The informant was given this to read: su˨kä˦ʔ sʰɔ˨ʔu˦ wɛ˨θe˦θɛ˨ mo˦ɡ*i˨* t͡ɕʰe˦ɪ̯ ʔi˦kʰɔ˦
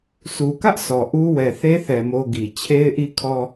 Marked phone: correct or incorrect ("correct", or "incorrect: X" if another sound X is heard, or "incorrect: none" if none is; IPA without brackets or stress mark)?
correct